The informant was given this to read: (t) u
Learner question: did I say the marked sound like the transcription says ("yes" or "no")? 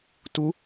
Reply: yes